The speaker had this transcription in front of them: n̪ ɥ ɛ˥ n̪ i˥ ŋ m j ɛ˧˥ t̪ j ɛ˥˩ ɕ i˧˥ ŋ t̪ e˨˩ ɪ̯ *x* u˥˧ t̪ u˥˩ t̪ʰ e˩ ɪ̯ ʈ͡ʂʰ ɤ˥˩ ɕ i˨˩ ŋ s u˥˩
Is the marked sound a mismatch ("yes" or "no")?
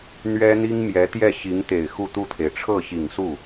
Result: no